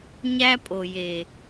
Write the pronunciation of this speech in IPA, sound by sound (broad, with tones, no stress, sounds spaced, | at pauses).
ɲ æ˦ pʼ o˨ j e˨